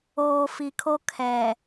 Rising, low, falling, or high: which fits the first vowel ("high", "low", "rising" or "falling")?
low